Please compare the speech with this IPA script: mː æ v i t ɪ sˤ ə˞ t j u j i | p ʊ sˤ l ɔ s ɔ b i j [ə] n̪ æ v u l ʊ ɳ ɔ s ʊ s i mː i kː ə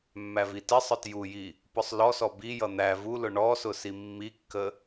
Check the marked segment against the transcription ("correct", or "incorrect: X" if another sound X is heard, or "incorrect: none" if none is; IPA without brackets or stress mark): incorrect: ʌ